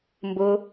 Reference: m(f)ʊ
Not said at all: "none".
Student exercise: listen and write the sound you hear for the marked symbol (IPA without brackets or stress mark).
b